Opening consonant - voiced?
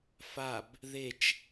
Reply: no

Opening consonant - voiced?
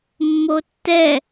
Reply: yes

